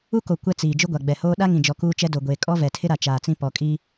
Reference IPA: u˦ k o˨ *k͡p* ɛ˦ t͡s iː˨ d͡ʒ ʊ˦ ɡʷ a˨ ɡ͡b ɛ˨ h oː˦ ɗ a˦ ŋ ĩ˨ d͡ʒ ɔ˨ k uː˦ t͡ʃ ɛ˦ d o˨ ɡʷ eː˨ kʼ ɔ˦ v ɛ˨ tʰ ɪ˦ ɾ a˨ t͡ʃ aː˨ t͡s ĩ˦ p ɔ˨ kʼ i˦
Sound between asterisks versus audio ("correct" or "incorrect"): incorrect